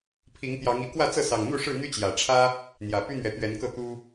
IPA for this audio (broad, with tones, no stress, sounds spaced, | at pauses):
pʰ i˨˦ ŋ t̪ j ɑ˨˦ ŋ i˨˦ k w ä˥˨ t͡s ɤ˥˨ s ɑ˨˩ ŋ n̪ u˥˨ ʂ ɻ̩˥˨ n̪ y˦ t͡ɕ j ä˨˩ ʈ͡ʂʰ ä˦ | n̪ j ä˨˩ p y˦ n̪ ɥ ɛ˨˦ t̪ ɥ ɛ˨˦ n k ɤ˥˨ t̪ u˦